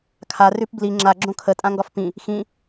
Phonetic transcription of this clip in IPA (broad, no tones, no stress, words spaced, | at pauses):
kʰa rʉpbli ŋ͡ǁa ɡ͡ǁõkʰə tʼãŋɡɒfpĩ | xĩ